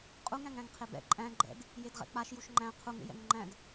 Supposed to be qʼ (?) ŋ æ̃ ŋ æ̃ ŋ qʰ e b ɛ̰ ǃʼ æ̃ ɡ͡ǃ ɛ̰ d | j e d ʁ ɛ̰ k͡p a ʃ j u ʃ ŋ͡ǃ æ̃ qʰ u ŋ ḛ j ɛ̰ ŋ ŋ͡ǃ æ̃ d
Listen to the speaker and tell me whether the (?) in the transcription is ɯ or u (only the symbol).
u